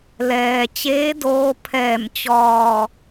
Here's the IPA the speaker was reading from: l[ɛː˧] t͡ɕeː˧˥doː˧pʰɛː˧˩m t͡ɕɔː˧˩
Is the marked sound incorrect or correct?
incorrect